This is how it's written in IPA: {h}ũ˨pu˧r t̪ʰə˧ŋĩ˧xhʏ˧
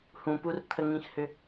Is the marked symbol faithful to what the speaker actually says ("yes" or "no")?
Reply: yes